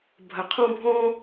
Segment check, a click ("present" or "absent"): absent